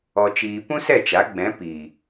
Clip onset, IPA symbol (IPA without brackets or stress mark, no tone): ɔ